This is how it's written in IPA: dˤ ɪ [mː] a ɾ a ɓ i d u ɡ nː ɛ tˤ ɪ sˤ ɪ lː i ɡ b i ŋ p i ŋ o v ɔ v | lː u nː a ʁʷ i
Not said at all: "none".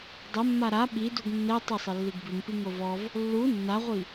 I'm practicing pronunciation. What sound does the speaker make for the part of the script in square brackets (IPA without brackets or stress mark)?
mː